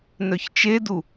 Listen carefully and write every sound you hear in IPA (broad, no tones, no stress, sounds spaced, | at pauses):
n œ ç t͡ʃ e d u